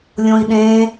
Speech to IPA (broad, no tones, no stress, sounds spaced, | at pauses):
lʲ õ i̯ ɗ ẽ